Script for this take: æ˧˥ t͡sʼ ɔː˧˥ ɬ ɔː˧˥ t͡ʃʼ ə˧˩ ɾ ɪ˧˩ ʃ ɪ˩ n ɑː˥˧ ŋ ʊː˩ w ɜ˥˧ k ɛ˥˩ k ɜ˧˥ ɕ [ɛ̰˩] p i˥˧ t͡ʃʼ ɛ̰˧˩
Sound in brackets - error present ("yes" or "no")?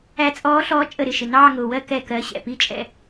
no